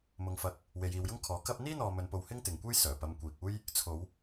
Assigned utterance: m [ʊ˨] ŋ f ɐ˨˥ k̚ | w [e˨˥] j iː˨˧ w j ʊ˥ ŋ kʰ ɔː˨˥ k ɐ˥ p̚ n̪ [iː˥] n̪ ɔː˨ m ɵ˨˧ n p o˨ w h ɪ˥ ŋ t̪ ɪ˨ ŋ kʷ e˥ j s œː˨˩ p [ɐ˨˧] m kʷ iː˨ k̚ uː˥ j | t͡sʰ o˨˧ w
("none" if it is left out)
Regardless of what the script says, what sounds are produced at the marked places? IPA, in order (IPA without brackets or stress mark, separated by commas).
ʊ˨, e˨˧, iː˥, ɐ˧